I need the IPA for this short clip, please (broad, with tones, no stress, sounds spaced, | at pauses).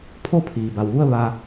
pʰ o˥˨ pʰ iː˩ b a˩ w ʋ u˥˨ ə̯ ʋ a˧